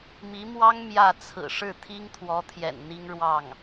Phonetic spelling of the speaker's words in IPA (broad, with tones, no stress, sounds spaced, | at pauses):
m i˧˥ m w ɑ˥ ŋ m j ä˥˩ t͡sʰ ɹ̩˨˩ ʂ ɻ̩˥˩ t̪ʰ i˥ ŋ t̪ʰ w ɔ˧˥ t̪ʰ j ɛ̰˨˩ n n̪ i˥ ŋ ɻ w ɑ˥˩ ŋ